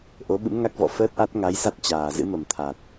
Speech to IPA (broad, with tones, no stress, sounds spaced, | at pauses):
ʔ o˨˦ ɓ ɨ̰˧˥ m ŋ a˦˥ k̚ v ɔ̰˧˨ f əː˦˥ t̚ ʔ a˦˥ t̚ ŋ a˨˦ j s a˦˥ t̚ t͡ɕ aː˨˩ z ɨ̰˧˥ m ə˨˩ m t̪ʰ a˨˩ t̚